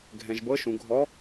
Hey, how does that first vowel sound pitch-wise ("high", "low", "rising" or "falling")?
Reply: low